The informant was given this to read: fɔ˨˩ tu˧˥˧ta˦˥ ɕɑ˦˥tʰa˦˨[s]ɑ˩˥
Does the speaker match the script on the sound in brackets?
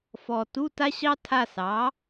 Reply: yes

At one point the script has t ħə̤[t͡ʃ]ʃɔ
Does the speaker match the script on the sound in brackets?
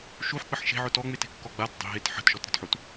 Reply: no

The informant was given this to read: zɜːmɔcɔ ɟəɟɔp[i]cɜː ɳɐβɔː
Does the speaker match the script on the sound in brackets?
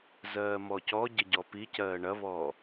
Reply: yes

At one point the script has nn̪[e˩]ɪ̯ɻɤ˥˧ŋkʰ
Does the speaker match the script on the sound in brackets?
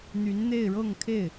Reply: no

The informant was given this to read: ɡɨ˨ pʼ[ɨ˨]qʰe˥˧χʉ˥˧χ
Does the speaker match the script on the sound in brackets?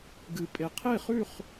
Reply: no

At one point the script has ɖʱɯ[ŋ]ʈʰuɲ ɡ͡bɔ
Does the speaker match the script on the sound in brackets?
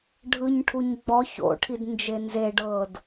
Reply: no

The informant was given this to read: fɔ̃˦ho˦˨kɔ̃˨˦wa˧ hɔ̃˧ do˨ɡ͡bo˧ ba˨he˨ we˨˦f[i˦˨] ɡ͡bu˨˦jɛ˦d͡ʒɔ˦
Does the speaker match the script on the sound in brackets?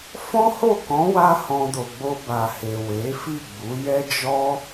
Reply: yes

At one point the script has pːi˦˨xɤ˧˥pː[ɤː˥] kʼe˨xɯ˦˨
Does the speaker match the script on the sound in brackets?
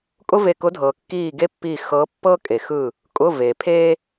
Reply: no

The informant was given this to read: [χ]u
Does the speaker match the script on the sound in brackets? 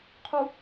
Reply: no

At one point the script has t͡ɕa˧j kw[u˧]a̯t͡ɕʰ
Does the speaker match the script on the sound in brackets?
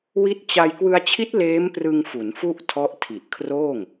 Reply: no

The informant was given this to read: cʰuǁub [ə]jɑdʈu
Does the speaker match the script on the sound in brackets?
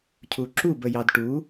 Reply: yes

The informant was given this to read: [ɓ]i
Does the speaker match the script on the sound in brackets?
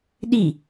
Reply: no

